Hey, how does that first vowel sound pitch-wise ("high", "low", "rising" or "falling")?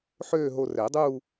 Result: falling